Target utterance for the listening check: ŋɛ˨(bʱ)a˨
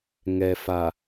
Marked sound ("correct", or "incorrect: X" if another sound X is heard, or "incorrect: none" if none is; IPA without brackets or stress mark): incorrect: f